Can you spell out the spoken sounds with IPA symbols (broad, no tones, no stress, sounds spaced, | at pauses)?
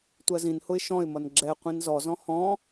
tʷ ɜ z ĩ n h ʊ ɪ̯ ʃ ɔ̃ ɪ̯ m ʌ n ɡ͡ǁ ɛ qʷ ĩ n z ɔ z ɔ̃ h ɔ̃